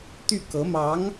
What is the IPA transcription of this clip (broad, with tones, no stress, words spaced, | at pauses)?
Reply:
t̪y˥˩kɤ˧˥mɑ˧˥ŋ